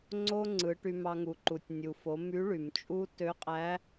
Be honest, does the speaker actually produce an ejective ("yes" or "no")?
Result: yes